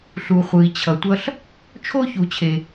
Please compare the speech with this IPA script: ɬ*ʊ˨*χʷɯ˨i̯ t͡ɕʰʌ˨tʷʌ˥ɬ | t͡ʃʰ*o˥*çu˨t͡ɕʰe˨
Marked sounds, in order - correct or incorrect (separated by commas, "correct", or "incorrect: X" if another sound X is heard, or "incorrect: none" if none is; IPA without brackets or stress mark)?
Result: incorrect: u˨, correct